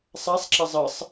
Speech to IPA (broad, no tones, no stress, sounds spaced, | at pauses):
sˤ a sˤ ǁ ɐ zˤ ə sˤ